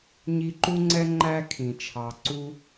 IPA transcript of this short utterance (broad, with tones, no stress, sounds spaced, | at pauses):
ɲ i˦ ǃ u˥ ŋ͡ǀ ɛ˥ ŋ͡ǃ æ˥ kʰ ĩ˨ t͡ʃʰ ɑ˨ ǀ u˦